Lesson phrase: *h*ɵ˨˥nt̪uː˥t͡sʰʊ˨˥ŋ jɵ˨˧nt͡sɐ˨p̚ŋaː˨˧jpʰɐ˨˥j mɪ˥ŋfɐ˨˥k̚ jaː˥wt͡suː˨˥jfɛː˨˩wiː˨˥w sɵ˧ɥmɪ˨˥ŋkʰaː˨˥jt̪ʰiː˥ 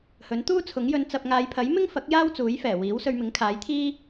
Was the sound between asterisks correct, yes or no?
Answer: yes